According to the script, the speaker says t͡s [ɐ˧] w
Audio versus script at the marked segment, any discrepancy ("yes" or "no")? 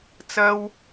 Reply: yes